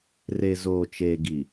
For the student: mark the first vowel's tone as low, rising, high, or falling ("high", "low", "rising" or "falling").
low